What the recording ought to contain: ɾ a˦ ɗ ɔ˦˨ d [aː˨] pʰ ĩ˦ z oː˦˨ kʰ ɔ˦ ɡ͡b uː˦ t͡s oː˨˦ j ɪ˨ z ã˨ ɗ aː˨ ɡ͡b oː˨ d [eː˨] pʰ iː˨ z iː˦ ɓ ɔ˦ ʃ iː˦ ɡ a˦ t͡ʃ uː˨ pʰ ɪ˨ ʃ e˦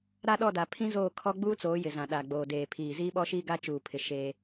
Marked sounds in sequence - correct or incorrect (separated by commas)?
incorrect, correct